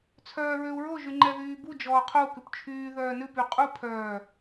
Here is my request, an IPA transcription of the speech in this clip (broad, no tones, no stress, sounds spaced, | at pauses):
t͡sʰ œː ɹ ø u̯ ɹ o ʒ y ŋ͡ǃ ɛ ð yː b u d͡ʒ ɔː qʰ o u̯ k ʉ p t͡ʃʰ yː ð œː n ʉ p y qʼ u pʰ œː